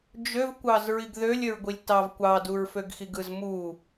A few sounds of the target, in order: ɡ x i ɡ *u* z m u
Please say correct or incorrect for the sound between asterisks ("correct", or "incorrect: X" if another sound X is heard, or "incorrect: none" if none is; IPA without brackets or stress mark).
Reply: incorrect: ɯ